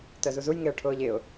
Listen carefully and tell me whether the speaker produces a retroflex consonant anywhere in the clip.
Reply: yes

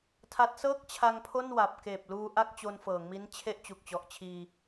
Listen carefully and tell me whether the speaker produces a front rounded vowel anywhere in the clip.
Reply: no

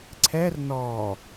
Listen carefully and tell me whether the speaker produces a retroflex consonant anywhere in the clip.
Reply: no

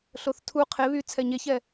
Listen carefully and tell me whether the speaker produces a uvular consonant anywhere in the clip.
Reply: yes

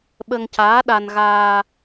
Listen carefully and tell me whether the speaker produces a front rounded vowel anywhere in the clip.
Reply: no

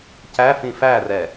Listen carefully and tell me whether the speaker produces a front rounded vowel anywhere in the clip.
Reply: no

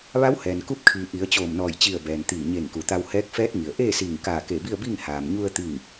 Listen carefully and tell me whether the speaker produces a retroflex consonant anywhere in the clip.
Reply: no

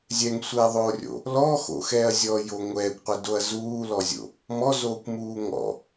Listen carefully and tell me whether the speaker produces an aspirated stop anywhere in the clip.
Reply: no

